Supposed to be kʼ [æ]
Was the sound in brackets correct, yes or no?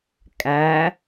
yes